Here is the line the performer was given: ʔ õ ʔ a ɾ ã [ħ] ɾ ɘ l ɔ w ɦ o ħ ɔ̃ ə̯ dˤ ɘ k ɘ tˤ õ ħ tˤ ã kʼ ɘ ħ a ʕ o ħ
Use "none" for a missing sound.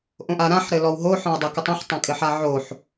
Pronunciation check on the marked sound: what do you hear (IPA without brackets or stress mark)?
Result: ħ